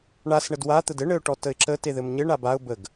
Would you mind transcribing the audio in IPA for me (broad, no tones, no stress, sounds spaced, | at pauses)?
ɳ a s ɳ ə d w a t̪ ə d ɘ ɳ ɘ ʊ̯ ʈ ɔ t ə ɪ̯ ǁ ə t e ð ɘ m ɲ ɘ ɳ a b a ʊ̯ b ə ɡ